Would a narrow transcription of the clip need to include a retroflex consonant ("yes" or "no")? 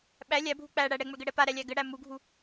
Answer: yes